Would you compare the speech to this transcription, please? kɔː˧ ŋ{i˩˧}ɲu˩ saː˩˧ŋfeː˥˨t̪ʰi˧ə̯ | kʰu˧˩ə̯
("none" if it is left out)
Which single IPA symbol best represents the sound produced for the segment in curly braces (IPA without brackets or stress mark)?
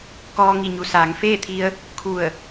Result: i˩